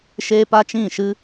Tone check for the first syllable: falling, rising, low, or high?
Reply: high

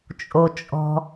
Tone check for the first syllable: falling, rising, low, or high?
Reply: high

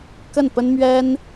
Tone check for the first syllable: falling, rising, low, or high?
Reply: falling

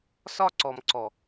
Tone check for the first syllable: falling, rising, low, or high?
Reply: falling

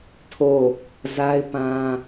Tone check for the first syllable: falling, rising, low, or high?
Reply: falling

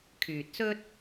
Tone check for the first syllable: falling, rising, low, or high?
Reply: low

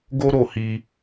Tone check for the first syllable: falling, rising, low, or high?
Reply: high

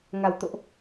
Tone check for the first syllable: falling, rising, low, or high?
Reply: low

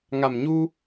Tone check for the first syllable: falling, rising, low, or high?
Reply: low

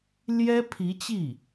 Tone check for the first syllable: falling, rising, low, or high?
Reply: high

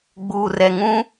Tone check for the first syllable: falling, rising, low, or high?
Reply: low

